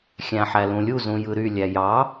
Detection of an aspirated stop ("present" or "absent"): absent